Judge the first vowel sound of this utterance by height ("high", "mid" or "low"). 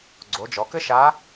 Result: mid